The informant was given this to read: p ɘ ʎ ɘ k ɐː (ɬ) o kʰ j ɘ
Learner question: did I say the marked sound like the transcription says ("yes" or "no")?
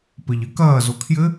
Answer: no